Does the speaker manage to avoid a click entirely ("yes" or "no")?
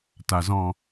yes